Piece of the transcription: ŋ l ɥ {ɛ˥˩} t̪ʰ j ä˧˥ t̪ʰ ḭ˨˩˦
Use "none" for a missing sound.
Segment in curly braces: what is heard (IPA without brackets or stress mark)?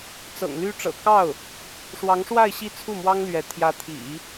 ɛ˧˥